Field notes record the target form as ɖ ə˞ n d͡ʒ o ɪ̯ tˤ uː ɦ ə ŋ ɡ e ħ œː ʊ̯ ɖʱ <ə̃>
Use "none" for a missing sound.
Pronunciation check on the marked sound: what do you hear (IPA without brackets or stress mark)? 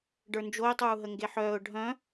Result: œ̃